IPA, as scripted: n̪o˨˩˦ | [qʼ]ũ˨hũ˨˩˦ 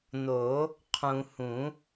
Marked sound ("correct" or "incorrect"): incorrect